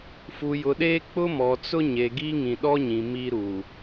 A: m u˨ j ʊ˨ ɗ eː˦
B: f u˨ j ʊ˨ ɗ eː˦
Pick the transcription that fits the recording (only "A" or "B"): B